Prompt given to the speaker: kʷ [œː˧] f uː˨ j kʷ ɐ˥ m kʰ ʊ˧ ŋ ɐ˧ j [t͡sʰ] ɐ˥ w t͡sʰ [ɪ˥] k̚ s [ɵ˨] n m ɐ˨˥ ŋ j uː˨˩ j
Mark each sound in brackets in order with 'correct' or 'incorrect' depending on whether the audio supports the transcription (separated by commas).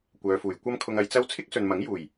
incorrect, incorrect, correct, correct